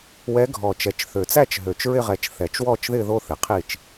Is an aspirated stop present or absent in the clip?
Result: present